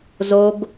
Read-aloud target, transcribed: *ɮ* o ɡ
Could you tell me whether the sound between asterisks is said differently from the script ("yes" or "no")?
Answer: yes